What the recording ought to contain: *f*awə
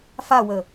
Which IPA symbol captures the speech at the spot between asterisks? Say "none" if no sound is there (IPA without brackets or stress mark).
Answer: f